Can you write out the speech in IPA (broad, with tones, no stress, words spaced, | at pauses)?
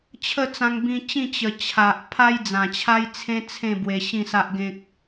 t͡ɕʰə˥˧t͡sã˧ŋbĩ˧t͡ɕĩ˥˧ t͡ɕə˨˩ t͡ɕʰa˨ʔ pʰa˦jd͡zã˨˩t͡ɕʰa˦jt͡sʰẽ˦ t͡sʰẽ˥˧ bwe˧ ɕĩ˥˧sa˦ʔɡẽ˦k̚